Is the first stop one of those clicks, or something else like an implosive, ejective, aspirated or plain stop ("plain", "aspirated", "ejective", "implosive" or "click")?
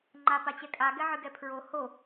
click